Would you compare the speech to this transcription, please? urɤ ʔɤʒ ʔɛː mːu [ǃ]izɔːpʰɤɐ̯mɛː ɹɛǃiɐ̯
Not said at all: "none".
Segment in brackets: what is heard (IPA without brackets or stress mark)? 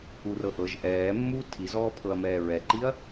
tʰ